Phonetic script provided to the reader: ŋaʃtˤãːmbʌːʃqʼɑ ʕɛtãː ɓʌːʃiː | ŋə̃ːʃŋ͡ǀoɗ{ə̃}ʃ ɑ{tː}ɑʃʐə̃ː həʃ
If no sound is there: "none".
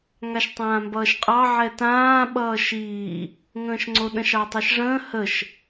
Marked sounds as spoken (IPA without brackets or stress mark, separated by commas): ə̃, tˤ